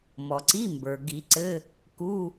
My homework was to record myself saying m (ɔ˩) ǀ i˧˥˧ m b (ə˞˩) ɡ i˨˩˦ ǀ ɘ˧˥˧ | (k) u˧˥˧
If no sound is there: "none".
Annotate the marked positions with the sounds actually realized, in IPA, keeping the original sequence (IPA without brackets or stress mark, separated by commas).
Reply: ɔ˩, ə˞˩, k